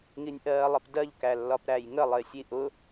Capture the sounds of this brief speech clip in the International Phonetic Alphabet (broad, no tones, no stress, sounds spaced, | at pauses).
ŋ i nʲ ʔ ɜː lˠ ɪ p d ɜ ʎ k æ lː ɒ p ɾ æ j ŋ ə lˠ ɪː sʲ iː ʔ ʊ